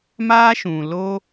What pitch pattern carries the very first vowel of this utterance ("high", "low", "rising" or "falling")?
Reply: high